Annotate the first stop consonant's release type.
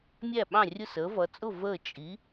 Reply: implosive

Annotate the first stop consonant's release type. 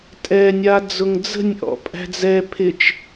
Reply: ejective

